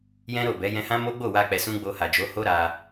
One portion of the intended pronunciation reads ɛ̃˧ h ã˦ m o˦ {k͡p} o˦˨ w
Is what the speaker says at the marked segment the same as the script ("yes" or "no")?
no